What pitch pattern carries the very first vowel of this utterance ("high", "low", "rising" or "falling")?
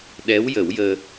rising